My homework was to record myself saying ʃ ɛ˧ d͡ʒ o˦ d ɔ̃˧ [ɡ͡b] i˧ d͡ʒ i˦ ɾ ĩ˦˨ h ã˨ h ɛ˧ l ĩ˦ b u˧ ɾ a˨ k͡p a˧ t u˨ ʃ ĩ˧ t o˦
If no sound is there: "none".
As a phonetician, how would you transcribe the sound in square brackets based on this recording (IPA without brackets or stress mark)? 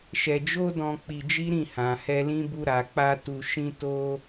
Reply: k͡p